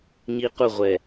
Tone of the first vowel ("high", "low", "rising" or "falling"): high